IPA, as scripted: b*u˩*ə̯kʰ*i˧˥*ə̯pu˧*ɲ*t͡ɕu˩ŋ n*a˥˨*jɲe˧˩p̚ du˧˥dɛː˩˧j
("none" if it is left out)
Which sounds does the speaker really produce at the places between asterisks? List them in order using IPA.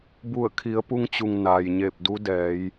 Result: u˧˩, i˩˧, ŋ, a˩

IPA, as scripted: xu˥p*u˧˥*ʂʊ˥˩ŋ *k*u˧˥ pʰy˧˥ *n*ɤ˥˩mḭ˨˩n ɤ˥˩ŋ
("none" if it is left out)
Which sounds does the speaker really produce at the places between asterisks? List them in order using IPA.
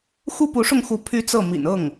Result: u˧˥, x, t͡s

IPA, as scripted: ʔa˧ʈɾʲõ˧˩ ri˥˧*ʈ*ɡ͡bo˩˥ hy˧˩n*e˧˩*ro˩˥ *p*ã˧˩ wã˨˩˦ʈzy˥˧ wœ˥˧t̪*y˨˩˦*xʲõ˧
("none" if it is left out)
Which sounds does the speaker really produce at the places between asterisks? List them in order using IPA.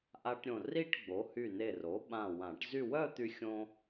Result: ʈ, e˧˩, ɓ, y˧

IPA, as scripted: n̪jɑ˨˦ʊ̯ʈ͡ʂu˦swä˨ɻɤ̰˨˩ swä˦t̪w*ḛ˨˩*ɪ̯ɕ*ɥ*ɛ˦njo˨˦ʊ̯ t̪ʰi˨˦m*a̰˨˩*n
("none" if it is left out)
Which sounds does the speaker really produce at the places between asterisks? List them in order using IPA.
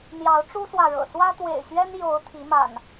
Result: ḛ˨˩, ɥ, a̰˨˩

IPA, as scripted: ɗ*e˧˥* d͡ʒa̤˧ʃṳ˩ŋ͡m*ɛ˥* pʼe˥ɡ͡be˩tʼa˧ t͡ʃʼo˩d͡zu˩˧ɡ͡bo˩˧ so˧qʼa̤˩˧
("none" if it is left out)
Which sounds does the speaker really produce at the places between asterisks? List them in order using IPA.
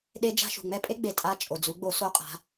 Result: e˧˥, ɛ˥

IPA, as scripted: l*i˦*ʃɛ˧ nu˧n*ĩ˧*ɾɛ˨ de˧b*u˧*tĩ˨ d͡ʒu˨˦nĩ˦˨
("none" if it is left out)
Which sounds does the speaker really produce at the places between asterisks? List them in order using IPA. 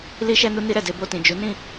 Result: i˧, i˧, o˧

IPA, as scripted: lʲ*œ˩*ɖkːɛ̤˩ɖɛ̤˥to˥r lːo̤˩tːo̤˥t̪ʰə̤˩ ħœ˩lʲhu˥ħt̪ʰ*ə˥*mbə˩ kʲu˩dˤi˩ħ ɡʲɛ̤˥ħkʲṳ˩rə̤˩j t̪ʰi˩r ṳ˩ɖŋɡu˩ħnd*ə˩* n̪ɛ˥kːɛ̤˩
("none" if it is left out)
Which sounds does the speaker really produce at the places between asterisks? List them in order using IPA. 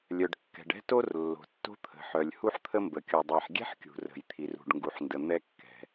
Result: œ˩, ə˥, ə˩

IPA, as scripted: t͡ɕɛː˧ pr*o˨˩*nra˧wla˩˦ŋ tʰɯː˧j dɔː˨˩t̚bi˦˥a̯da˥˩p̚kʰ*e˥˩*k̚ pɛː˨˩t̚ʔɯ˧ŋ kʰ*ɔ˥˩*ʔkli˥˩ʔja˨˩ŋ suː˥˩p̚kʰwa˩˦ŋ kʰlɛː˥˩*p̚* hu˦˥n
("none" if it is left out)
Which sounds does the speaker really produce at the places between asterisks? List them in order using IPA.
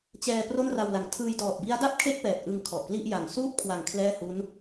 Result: o˥˩, e˥˩, ɔ˨˩, none

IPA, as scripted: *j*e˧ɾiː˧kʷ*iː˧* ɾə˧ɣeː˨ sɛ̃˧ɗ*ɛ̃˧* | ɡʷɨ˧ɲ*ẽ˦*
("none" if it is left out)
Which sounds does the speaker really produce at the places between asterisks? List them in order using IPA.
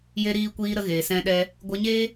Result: j, iː˧, ɛ˧, e˦

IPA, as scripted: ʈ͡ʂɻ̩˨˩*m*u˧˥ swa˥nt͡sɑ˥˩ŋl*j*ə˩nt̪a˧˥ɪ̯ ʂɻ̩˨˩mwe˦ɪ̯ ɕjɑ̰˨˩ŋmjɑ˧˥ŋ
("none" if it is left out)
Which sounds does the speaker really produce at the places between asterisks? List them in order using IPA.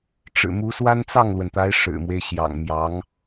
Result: m, w

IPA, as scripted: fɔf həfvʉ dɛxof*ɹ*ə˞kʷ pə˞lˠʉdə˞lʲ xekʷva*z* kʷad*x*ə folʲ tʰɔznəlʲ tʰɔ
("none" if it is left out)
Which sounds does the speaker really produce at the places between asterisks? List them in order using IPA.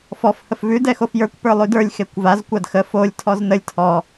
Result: j, z, x

